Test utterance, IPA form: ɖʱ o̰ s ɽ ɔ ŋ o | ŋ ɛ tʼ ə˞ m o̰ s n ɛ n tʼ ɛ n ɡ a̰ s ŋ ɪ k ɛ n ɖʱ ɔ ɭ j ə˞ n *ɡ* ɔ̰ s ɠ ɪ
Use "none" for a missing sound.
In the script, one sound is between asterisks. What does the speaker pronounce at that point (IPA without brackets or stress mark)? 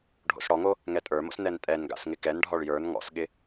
ŋ